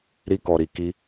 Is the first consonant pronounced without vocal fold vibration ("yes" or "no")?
no